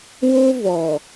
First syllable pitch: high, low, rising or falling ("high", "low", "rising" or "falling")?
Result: high